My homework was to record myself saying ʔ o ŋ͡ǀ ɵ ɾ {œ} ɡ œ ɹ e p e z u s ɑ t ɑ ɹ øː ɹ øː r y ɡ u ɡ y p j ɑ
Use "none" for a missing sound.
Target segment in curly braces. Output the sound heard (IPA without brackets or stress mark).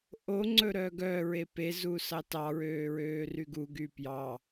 œ